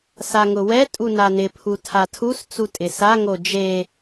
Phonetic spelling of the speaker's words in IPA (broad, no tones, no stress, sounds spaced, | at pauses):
s a ŋ ʊ w ɛ tʼ u n a n ɪ pʰ u tʰ a tʰ u s t͡s u tʼ ɪ s a ŋ o d͡ʒ e